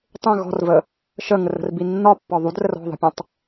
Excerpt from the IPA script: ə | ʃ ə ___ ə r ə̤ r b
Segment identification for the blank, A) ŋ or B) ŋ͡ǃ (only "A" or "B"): A